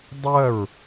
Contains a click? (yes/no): no